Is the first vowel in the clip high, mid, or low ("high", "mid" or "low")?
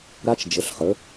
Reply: low